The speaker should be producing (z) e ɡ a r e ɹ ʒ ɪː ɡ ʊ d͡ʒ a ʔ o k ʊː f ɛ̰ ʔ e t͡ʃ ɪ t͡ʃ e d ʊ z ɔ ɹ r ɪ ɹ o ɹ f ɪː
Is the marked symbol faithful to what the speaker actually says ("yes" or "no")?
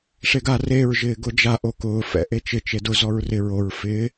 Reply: no